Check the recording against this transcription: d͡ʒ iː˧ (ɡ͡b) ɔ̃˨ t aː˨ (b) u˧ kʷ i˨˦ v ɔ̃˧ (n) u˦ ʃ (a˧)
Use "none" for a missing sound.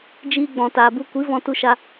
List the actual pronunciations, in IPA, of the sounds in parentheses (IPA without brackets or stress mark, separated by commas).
ɡ͡b, b, t, a˦